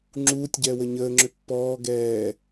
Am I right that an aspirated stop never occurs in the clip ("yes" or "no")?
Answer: yes